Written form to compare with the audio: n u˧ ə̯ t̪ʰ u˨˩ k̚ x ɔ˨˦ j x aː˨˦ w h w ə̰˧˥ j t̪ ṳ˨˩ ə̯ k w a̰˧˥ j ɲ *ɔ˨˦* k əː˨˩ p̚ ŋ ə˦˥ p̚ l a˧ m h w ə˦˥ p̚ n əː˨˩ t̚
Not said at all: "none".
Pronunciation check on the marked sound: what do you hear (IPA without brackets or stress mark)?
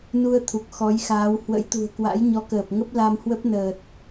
ɔ˨˦